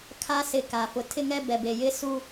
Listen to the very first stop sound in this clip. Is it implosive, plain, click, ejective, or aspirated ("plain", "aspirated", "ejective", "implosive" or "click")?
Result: aspirated